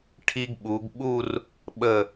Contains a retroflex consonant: yes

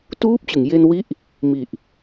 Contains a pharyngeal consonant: no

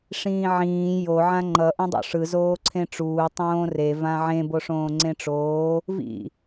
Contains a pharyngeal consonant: yes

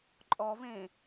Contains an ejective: yes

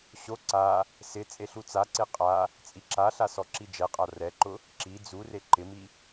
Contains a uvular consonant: yes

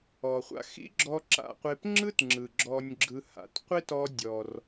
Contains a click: yes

